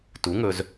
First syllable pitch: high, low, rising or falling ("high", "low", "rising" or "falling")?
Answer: rising